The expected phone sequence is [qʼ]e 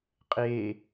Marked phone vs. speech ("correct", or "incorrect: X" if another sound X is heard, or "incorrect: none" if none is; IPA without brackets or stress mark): correct